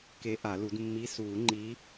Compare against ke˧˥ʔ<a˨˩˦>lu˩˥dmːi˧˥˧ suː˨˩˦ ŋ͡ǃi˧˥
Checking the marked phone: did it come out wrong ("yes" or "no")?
no